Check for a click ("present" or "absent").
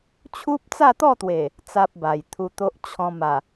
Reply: absent